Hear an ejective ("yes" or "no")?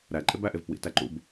yes